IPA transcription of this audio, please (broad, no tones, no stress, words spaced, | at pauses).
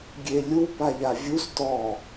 ɡʲelʲu paʎavʲus tɔ